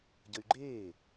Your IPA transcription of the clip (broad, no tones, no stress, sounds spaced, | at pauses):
ɟ ə y̯ ɡ͡ǃ eː